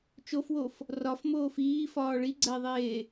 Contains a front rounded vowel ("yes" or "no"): no